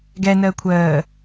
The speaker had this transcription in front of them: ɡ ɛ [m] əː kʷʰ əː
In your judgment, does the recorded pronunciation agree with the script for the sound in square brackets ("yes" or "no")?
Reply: no